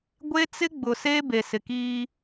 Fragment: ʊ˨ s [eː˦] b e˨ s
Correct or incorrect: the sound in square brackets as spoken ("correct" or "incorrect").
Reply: correct